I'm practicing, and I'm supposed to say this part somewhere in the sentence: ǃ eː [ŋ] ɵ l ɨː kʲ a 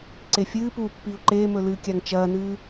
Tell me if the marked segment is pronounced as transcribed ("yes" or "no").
no